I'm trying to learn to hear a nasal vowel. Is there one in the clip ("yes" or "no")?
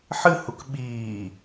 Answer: no